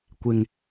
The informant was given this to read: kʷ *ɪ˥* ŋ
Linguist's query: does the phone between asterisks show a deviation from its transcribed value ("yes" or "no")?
yes